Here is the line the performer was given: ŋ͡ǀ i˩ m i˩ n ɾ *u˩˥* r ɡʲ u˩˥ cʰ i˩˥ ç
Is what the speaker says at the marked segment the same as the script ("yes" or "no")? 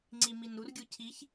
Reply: yes